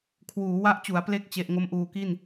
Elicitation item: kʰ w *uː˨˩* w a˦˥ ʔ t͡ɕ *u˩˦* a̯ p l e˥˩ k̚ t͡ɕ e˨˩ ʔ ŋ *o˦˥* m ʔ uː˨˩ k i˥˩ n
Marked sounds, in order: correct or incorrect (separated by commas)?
incorrect, correct, correct